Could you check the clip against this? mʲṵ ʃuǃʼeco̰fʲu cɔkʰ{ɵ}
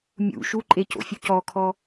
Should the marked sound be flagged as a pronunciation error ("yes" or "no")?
yes